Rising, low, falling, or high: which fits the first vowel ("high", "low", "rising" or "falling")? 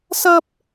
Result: high